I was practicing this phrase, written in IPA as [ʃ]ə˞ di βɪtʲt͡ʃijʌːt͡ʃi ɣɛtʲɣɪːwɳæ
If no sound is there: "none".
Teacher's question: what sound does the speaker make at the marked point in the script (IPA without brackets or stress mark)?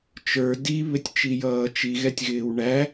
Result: t͡ʃ